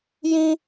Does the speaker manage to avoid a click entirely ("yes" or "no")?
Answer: yes